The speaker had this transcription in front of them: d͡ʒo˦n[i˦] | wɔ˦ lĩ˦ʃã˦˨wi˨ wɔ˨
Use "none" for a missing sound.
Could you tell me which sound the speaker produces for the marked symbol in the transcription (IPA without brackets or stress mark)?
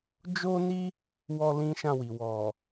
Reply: i˦